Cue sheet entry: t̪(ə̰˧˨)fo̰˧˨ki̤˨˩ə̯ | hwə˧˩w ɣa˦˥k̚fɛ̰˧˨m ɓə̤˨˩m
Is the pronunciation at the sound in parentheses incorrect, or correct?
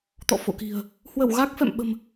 incorrect